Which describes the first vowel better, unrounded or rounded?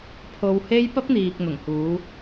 rounded